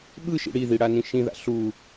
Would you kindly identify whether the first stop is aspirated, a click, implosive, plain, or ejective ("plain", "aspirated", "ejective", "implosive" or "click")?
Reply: implosive